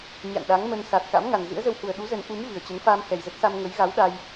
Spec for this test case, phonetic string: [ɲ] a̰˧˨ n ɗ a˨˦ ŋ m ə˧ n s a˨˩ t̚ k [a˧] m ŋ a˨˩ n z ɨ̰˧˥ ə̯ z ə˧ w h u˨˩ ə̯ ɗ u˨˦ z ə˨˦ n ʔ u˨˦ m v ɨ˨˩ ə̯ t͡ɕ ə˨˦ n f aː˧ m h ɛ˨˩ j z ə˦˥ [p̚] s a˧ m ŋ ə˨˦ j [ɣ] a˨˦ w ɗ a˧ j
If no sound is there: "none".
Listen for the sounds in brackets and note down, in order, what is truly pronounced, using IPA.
ɲ, a̰˧˥, t̚, ɣ

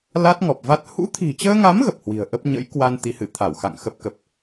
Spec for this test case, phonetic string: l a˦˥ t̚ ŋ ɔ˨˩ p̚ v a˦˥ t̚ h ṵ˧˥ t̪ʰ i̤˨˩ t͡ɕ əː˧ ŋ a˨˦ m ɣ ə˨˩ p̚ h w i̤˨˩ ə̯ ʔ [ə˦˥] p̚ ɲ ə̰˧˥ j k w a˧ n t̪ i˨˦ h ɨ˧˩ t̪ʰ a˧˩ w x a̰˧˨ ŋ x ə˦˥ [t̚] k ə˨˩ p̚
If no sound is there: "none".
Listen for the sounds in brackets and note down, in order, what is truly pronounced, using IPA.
ə˦˥, p̚

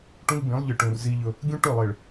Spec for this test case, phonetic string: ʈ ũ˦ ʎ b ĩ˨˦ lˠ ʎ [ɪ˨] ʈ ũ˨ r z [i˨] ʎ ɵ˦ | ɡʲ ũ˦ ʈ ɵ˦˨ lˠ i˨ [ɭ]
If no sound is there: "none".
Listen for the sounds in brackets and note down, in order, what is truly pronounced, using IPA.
ɨ˨, i˦, ɭ

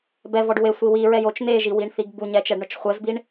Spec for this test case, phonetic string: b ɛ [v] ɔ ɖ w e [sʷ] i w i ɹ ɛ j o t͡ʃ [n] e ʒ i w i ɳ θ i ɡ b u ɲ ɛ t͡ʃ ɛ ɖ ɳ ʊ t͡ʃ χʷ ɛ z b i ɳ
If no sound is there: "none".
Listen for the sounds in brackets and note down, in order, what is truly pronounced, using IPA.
v, sʷ, n

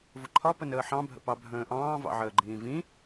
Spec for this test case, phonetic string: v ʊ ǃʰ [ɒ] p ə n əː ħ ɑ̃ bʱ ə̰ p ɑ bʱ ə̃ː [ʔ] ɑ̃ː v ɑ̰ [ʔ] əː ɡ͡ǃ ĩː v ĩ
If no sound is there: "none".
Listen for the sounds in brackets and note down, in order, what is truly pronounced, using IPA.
ɒ, ʔ, ʕ

